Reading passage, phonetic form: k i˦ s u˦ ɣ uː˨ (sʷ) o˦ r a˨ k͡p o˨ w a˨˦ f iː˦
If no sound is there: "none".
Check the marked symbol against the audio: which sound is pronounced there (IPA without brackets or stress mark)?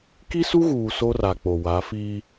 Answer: s